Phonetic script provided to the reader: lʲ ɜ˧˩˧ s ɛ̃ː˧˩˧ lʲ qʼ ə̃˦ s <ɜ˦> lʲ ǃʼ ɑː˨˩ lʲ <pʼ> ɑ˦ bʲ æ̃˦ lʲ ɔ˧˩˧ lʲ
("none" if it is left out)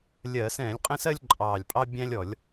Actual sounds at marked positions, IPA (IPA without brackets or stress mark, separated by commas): ɜ˦, pʼ